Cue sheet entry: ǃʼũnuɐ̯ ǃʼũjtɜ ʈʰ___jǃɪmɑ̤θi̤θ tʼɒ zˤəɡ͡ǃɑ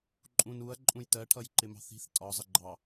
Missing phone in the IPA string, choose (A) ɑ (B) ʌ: B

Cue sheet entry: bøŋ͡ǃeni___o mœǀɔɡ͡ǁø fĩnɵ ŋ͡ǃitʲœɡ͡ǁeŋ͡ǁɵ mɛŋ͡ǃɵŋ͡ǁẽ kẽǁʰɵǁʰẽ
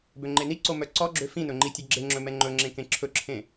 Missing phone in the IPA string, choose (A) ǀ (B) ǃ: A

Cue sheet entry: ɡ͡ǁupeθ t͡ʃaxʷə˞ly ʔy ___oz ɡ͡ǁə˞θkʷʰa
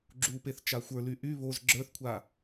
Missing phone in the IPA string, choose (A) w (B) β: B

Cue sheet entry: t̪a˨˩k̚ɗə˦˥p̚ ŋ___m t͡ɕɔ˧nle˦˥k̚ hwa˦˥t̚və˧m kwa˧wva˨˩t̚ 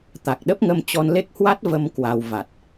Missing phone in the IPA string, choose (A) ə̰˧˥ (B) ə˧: B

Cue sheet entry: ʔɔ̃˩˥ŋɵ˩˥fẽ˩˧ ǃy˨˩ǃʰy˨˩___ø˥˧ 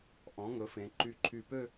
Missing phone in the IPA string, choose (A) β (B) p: B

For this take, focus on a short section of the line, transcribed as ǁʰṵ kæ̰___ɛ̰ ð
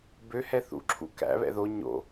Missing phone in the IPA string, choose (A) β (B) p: A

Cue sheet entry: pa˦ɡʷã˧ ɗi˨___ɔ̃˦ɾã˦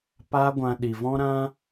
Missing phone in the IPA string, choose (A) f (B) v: B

